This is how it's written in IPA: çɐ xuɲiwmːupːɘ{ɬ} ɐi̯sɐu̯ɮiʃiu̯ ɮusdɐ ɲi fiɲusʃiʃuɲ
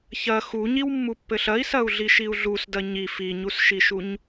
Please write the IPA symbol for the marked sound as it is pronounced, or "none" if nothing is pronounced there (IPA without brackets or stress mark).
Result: ɬ